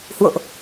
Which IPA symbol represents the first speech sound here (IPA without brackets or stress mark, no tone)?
h